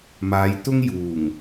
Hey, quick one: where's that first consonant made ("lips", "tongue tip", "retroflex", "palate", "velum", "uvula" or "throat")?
lips